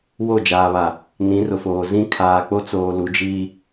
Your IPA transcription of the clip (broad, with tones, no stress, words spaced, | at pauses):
wo˦˨d͡ʒaː˨βa˨ | nĩ˨˦rʊ˨foː˨ zĩ˦ kʰaː˨k͡po˦t͡soː˨ lu˨˦d͡ʒiː˦